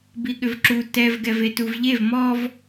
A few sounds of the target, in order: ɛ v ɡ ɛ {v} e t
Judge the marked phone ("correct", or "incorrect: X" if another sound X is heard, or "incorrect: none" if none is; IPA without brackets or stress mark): correct